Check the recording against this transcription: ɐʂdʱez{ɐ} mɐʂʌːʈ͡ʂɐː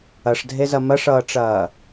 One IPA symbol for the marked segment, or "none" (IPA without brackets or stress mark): ɐ